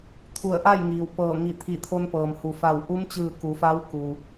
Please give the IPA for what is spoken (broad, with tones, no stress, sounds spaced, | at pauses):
t̪ʰ u˧˩ ə̯ ʔ a˥˨ j ŋ iː˩ w p ɤː˧˩ ŋ i˧˩ t̪ʰ i˧˩ t̪ʰ o˧ n p ɤː˩ m h u˩ f a˧˩ w ʔ u˧˥ m t͡ɕ ɯː˧˩ k u˩˧ f a˧˥ w k u˩